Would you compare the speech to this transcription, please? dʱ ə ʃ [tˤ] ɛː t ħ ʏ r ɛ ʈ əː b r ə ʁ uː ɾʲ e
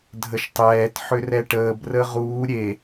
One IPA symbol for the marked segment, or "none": tˤ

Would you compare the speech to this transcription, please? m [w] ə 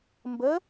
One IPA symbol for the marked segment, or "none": b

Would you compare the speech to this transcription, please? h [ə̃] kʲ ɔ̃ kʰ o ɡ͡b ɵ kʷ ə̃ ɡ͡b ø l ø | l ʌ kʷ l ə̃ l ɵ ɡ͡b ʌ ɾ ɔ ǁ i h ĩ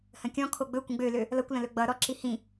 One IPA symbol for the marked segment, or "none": ə̃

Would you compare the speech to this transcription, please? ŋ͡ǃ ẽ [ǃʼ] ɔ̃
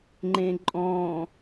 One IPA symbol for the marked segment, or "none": ǃʼ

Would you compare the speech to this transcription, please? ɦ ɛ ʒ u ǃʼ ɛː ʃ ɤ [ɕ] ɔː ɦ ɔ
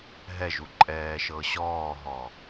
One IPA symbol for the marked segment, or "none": ɕ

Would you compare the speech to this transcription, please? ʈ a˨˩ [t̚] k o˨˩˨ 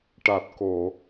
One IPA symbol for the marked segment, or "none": t̚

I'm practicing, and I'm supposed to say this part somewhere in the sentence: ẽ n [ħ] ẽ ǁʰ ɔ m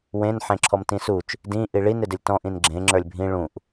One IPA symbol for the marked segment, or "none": ħ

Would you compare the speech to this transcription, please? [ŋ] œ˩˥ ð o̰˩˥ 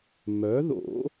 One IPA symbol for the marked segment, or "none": m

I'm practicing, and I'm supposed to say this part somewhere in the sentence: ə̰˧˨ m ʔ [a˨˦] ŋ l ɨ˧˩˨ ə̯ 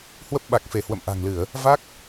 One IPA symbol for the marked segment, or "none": a̤˨˩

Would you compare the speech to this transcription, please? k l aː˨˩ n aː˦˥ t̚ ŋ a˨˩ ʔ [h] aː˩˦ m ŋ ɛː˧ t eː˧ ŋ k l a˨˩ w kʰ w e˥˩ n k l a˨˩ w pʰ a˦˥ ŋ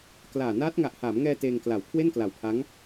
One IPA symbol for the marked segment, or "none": h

